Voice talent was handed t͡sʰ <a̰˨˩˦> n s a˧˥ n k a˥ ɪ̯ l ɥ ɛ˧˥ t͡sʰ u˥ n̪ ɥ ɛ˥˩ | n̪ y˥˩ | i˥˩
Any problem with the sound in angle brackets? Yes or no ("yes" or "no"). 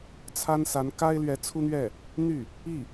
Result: yes